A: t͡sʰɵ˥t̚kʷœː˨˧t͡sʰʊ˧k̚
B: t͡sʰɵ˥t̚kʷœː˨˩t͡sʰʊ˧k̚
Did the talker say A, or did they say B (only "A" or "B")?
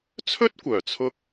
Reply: B